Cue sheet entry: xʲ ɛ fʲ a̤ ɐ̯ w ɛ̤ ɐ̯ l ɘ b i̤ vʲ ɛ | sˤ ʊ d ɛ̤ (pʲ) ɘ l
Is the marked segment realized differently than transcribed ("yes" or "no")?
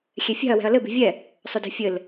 yes